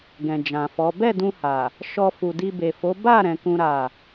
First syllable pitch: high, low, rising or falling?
low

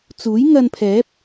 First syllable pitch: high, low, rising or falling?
rising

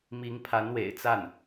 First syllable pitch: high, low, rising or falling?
rising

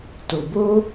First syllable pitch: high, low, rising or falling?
low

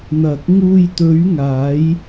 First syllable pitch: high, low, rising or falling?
low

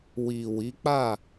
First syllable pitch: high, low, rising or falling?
low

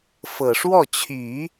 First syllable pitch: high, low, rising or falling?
low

